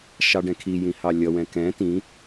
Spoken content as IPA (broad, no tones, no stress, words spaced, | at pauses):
ʃɑɖɛ̃kʰijĩ hɑlʲʌwɛ̃ kɛ̃ tĩ